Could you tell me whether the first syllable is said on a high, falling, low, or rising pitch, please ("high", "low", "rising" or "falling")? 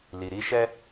low